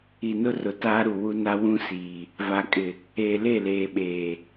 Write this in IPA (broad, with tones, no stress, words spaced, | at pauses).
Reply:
i˨nʊ˦rʊ˨ taː˦ɾu˨ wu˦na˦ wũ˦siː˨ | va˨kʼɪ˨ | eː˨le˦˨leː˨ɓeː˨